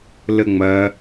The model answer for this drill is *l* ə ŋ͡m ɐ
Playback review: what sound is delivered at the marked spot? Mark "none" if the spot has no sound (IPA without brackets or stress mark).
l